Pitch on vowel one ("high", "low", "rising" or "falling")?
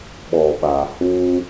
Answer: low